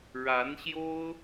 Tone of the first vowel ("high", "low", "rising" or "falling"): rising